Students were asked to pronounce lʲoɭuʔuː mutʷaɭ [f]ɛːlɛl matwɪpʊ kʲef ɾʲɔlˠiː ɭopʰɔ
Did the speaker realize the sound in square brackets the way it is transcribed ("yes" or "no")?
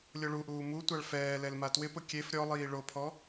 yes